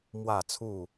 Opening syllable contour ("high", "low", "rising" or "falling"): falling